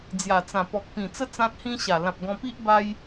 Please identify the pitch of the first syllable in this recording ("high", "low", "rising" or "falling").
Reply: low